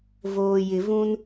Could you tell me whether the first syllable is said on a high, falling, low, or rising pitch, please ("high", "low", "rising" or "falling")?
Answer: low